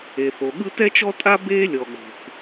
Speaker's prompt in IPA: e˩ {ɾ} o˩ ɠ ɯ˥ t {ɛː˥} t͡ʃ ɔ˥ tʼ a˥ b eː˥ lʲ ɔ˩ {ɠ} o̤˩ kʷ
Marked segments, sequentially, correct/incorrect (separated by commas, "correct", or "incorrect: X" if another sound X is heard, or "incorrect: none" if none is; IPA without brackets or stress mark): incorrect: θ, incorrect: ɛ˥, correct